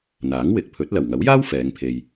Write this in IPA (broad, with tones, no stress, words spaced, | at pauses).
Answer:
n̪aː˨˥ŋ wɪ˨k̚pʰɵ˨˥t̚lɐ˨˩w ŋɐ˨˥wjaː˥w fɛː˨˧ŋpʰe˧j